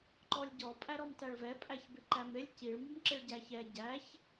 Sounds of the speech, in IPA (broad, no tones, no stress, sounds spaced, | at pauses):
ǃ ɔ lʲ ɟ ɔ pʼ æ ɾ ɔ m t æ ɭ v ɛ pʼ æ ç b ɪ ǃ æ m ɾ ɪ lʲ c i ɭ m u m ǁ ɪ ɭ ɟ æ ç ɛ ɟ æ ç